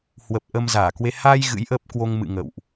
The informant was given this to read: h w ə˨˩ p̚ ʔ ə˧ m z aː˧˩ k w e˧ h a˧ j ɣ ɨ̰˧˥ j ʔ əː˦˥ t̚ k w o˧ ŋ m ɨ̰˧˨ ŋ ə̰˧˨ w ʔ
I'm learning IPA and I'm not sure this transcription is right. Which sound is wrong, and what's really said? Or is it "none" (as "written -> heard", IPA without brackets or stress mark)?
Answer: t̚ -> p̚